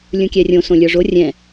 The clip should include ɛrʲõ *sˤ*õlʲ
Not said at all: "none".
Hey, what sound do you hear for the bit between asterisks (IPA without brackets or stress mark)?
s